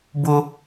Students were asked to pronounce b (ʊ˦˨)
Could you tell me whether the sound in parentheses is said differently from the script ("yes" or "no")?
yes